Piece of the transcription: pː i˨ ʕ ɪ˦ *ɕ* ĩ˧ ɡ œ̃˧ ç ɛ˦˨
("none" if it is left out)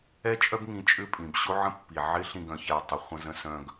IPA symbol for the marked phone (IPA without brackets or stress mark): ɬ